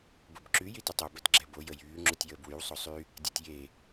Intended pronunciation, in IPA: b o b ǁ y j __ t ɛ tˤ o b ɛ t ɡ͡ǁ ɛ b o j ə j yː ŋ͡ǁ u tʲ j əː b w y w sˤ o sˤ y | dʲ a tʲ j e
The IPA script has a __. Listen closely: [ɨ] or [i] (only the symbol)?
i